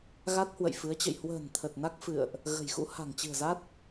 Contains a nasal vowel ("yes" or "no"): no